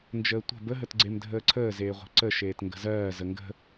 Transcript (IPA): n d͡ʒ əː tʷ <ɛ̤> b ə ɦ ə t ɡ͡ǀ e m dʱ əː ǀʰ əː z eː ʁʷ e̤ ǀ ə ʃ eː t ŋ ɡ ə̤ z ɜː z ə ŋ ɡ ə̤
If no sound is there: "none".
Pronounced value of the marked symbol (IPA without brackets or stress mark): ə̤